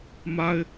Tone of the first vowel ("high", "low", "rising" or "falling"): high